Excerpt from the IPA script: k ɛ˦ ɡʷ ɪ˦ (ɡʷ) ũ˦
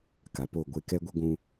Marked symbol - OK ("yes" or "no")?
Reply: yes